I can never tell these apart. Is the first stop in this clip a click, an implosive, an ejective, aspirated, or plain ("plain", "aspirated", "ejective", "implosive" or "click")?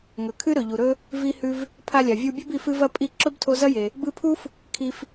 aspirated